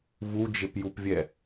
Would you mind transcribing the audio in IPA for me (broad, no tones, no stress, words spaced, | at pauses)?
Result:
vud͡ʒɪpjupvʲɛ